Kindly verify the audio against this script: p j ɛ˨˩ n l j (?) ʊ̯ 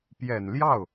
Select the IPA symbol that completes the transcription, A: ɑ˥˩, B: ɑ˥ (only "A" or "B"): A